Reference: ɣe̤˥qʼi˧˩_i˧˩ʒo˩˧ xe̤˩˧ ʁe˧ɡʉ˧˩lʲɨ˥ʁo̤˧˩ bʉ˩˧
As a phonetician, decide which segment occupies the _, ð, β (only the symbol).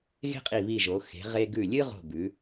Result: β